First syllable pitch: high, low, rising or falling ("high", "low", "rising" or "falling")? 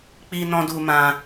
high